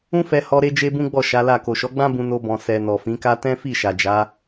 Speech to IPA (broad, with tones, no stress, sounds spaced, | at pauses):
ũ˦ f ɛ˧ h ɔ˧ ɾ e˦ d͡ʒ e˦ b ũ˦ ɡ͡b ɔ˦˨ ʃ a˨˦ l a˦˨ k o˨ ʃ ɔ˨˦ ɡ͡b ã˦ b ũ˧ n o˧ b ɔ̃˨ s ɛ˨ n ɔ˨ f ĩ˨˦ k a˦ t ɛ̃˦ f i˦˨ ʃ a˨ d͡ʒ a˨˦